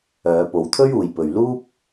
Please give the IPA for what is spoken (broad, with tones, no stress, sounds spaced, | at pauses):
œː˨˧ p o˨˧ w t̪ʰ ɵ˥ ɥ uː˨ j p ɵ˨ ɥ l uː˥ p̚